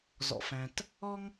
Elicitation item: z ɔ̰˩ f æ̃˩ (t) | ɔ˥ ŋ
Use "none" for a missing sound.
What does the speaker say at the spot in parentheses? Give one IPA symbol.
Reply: t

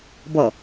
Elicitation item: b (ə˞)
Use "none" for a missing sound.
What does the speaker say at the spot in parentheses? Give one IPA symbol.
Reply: ʌ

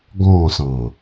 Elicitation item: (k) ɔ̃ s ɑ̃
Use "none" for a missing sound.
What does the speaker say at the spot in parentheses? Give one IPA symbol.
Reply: ɡ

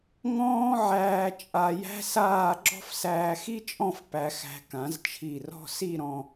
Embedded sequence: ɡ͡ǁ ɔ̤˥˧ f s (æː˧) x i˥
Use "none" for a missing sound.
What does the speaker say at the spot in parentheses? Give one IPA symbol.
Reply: æː˧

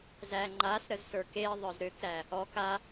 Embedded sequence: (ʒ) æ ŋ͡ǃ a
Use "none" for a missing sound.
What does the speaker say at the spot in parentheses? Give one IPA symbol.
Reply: z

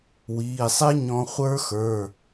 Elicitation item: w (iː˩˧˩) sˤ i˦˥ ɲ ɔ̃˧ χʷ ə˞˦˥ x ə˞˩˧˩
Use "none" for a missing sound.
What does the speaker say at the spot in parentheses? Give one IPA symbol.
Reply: iː˩˧˩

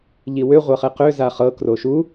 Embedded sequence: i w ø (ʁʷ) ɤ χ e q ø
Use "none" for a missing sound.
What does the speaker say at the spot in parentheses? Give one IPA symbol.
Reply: ʁʷ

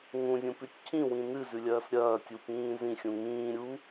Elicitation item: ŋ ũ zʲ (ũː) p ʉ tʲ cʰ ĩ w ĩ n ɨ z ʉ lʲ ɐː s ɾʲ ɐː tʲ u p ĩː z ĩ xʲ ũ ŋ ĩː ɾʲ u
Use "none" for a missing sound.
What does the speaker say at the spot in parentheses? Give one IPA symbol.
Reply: ũ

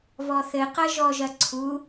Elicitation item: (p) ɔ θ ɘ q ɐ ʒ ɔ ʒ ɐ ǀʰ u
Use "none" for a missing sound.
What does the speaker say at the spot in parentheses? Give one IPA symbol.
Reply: β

